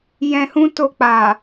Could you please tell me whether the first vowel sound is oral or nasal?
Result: nasal